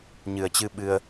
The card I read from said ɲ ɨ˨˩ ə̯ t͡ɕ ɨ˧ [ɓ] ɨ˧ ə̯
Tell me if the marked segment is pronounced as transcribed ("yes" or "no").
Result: yes